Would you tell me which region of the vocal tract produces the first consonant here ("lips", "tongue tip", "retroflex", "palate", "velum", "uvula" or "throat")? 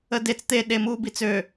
tongue tip